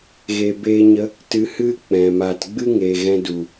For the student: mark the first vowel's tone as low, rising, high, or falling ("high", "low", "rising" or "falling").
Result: low